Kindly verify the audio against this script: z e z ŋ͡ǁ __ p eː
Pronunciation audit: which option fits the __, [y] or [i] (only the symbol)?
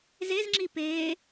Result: i